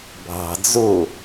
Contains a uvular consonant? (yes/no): no